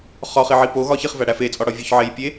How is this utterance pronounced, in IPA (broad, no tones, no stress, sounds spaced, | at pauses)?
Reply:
χ ɒ χ i ʕ i p o ɣ ɒ ç i χ v æ ɽ æ f e t͡sʼ ɒ ɽ ɒ vʲ o ç ʕ e j pʲ e